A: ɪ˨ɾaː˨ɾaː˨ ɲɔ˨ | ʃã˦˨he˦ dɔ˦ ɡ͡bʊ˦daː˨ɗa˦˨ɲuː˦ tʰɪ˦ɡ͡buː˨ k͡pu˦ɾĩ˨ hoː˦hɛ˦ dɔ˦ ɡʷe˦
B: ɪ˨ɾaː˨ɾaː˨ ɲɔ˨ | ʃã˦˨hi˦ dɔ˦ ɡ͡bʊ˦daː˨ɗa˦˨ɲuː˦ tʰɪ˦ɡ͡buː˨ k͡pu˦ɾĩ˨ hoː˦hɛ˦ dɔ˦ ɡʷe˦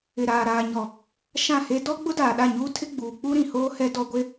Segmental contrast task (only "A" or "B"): A